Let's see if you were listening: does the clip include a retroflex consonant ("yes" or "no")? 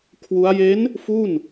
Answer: no